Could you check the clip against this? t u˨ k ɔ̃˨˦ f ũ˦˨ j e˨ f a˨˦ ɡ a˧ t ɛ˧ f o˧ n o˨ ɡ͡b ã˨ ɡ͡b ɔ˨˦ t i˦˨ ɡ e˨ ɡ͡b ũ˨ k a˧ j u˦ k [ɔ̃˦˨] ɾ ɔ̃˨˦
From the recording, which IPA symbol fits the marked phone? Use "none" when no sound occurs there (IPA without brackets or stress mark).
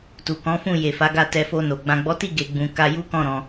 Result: ɔ̃˦˨